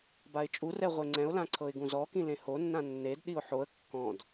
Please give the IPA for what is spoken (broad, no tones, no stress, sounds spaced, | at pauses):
b a ɪ̯ t͡ʃʼ u r ɛ ʁʷ e ŋ͡ǀ ɛ̃ ʊ̯ l ã ǀʰ ɤ ɪ̯ ɡ ũ z ɔ k ĩ l ẽ h o nː ã nː e d ɗ i ʊ̯ ħ o ə̯ kː ɔ̃ d